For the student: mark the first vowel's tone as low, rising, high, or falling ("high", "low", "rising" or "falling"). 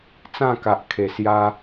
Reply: falling